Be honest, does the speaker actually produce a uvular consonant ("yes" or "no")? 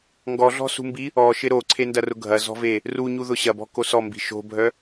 no